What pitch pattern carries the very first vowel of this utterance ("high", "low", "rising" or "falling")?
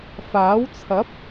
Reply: rising